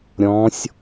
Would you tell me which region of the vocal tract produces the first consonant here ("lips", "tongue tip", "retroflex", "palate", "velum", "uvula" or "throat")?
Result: tongue tip